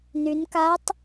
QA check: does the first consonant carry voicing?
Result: yes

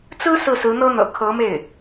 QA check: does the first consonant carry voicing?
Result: no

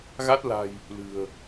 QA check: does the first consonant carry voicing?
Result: yes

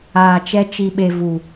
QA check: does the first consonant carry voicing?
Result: no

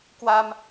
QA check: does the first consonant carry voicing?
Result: no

